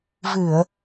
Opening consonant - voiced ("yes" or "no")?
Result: yes